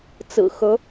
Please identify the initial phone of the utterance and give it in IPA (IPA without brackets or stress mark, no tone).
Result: t͡s